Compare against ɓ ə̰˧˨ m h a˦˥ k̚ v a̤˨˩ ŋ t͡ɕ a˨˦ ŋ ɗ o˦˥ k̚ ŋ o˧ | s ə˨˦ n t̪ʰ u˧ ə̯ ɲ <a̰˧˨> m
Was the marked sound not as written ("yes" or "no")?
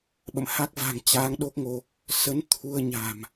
yes